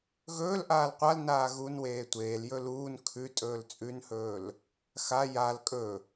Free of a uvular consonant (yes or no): no